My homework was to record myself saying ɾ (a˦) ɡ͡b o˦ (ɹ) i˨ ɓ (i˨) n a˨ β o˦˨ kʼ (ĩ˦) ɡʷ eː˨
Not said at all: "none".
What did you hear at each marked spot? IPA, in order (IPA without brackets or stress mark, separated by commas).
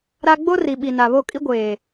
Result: a˦, r, i˨, i˦